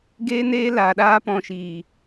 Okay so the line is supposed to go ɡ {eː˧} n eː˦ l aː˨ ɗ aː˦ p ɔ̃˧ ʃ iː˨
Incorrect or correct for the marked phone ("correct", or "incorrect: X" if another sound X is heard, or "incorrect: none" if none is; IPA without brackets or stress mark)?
incorrect: eː˦